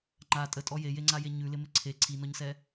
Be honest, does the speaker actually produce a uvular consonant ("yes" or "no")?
no